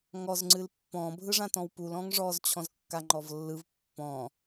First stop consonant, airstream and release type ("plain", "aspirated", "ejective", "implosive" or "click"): click